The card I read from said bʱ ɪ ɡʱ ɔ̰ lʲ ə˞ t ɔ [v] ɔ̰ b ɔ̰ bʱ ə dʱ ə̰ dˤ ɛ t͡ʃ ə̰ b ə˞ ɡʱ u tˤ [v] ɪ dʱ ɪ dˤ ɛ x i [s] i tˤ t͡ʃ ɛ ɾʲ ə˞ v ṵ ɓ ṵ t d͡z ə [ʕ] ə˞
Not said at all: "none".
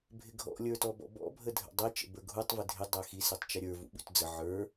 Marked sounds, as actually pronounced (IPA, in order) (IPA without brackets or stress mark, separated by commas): b, v, s, ʕ